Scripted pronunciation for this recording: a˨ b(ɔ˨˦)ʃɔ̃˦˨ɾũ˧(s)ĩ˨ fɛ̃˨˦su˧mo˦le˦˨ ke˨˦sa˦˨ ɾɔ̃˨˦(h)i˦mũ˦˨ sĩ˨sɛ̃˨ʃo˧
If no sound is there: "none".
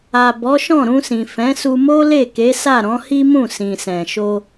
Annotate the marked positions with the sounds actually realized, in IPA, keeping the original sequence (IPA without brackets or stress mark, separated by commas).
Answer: ɔ˨˦, s, h